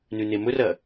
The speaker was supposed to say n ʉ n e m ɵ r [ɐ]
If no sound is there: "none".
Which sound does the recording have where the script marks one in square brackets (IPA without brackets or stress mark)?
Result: ɐ